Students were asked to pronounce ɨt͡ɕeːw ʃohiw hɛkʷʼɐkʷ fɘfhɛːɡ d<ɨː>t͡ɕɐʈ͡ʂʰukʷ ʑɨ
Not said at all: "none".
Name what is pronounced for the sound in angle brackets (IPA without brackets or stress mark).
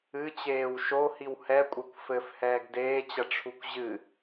eː